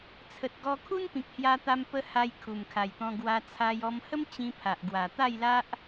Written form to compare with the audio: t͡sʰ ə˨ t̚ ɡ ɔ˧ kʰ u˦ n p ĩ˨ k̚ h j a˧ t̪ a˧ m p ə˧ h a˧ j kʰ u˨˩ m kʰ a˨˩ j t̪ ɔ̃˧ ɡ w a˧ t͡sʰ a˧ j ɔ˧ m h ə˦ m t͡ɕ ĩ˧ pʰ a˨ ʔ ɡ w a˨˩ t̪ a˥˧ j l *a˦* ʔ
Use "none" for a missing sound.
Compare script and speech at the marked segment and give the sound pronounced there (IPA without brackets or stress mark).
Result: a˦